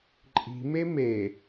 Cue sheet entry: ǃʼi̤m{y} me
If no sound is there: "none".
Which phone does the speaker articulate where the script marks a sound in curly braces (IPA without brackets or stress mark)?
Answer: e